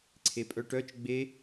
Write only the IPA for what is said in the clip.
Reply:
ǀʰepʼœʈœt͡ʃ ɡ͡be

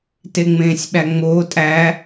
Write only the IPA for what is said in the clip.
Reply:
teŋ͡mẽːsʲɓæŋ͡moː tʼæ

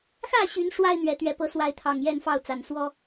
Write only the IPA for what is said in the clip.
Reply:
xä˥˨ɕy˨˦n ʂwa˦ɪ̯ n̪ɥɛ˨˦t̪ɥɛ˨˦pɤ˨˦ swa˨˦ɪ̯t̪ʰɑ˨˩ŋjɛ˥˨nfɑ˥˨ʊ̯ t͡sa˨˩nswɔ˦

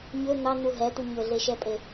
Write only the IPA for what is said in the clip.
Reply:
ɲɵ n̪ɑn̪u ɦɛt̪u ɲɵɮeʃɛpʼe

